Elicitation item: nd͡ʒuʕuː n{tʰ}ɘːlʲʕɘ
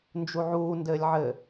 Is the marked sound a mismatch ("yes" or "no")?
yes